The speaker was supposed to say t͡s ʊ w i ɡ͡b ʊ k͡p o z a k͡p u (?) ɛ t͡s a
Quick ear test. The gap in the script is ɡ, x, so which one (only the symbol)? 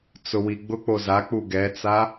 ɡ